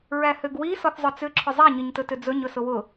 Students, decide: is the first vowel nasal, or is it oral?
oral